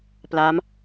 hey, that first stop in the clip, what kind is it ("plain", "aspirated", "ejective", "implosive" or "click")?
plain